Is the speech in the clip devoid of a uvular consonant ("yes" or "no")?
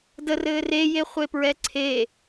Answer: no